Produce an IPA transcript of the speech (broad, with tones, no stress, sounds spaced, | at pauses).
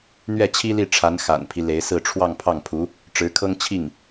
n̪ ɥ ɛ˥˩ t͡ɕʰ i˥ l i˥˩ ʈ͡ʂʰ a˧˥ n x a̰˨˩ n pʰ i˦ l e˧˥ ɪ̯ s ɹ̩˥˧ ʈ͡ʂʰ w ɑ˥˧ ŋ pʰ ɑ˥˩ ŋ pʰ u˧˥ | ʈ͡ʂ ɻ̩˧˥ kʰ ɤ˥ ŋ t͡ɕʰ i˥˩ ŋ